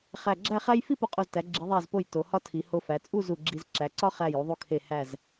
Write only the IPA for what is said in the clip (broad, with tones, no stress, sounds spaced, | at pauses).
χ æ˧˩ ɡ͡ǁ æ˥˧ χ æ˥ j f i˥˧ p o˧ qʼ o˧˩ z t æ˩˧ ɡ͡ǁ i˩˧ ðˤ æ˧˩ z p o˧˩ j t o˩˧ h ɒ˥ tʰ i˩˧ h o˧ f æ˩˧ t͡sʼ u˥˧ z u˧˩ ɡ͡ǁ i˧ z ǁ æ˩˧ ǀ ɒ˥ χ æ˧˩ j u˩˧ ðˤ u˧ kʰ e˧˩ h æ˧˩ z